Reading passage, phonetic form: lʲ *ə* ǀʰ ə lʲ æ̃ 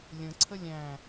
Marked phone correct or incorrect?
incorrect